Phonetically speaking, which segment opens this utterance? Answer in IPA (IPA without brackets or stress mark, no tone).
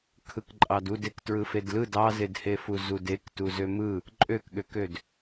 kʰ